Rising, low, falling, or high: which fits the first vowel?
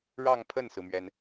falling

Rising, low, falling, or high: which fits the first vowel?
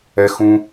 low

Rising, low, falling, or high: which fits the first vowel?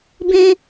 high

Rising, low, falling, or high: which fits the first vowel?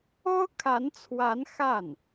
high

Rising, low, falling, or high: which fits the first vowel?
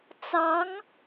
rising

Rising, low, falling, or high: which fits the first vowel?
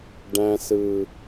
low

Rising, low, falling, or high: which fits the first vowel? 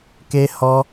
high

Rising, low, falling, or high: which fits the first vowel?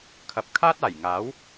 low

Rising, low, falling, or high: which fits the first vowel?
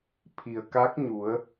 low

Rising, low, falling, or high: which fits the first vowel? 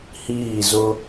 falling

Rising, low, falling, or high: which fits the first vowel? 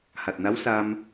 low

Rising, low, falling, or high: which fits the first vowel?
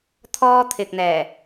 high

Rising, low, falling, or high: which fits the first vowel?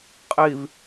low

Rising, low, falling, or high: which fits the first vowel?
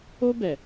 high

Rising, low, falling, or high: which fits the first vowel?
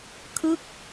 falling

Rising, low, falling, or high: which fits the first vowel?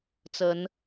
rising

